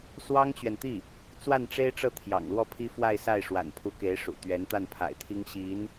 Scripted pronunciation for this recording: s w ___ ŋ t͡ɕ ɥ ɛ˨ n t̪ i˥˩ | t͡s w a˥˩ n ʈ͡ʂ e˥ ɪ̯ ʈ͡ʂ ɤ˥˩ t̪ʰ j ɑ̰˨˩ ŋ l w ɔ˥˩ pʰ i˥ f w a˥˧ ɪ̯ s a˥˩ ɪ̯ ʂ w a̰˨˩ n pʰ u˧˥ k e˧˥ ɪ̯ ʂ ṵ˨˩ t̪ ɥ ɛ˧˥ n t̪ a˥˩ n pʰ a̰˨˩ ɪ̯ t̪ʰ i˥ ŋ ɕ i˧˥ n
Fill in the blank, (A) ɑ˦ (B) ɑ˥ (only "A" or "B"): B